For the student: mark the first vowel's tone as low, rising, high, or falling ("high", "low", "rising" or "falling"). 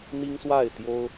high